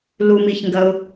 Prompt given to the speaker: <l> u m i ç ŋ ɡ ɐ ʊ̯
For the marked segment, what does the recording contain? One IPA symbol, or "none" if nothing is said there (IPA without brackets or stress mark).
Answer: l